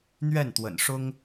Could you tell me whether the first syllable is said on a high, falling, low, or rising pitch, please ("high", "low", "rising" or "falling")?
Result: falling